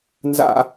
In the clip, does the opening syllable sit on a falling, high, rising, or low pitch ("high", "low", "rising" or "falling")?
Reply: high